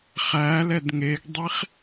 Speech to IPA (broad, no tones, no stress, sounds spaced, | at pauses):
χ æ l ɛ d ŋ e ɡ dˤ i χ